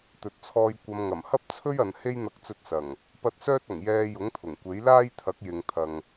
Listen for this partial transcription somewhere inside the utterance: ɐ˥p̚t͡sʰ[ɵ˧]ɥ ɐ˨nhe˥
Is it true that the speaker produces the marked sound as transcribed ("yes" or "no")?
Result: no